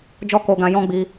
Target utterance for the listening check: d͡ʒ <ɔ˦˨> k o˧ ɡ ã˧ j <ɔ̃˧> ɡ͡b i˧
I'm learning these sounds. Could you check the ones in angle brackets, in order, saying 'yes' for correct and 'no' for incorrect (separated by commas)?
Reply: no, no